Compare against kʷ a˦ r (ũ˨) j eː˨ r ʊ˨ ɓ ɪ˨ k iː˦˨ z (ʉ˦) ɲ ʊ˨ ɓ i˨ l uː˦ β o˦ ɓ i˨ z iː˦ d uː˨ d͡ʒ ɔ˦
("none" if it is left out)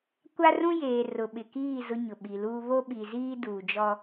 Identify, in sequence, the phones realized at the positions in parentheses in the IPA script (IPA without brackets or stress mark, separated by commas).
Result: ũ˦, ʊ˦